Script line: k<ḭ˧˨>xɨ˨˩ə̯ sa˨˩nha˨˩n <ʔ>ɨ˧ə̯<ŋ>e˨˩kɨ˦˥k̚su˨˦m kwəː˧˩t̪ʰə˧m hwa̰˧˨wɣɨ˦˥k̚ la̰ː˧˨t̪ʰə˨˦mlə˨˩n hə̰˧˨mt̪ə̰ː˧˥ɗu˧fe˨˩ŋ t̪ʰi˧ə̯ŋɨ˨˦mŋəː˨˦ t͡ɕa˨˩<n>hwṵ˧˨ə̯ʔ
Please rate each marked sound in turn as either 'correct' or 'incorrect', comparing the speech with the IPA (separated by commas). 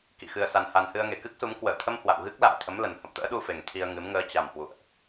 correct, incorrect, correct, incorrect